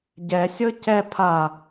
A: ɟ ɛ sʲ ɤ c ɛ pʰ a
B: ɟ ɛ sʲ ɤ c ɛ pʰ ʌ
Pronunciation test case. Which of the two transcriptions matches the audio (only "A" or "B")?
A